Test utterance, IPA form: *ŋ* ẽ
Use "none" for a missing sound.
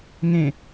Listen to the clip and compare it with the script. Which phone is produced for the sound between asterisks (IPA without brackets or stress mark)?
ŋ